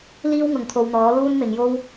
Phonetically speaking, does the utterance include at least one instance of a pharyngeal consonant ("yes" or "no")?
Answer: no